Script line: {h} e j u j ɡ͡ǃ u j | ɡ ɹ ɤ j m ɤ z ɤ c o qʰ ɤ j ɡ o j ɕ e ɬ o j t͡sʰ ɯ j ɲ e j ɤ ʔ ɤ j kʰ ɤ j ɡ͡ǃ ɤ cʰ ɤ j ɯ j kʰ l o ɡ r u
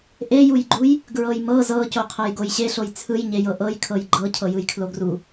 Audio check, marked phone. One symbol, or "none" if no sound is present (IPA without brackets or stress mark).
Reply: ʔ